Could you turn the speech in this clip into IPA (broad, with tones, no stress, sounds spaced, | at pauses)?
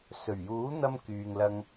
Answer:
s ɵ˨˩ ɥ j uː˨˥ n̪ ɐ˧ m k yː˨ ŋ l ɐ˧ ŋ